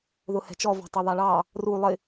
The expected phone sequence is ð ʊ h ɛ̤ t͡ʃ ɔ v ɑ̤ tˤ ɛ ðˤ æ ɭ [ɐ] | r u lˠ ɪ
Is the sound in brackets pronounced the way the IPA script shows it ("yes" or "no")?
no